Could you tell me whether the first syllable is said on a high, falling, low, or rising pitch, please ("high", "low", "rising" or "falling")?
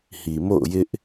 low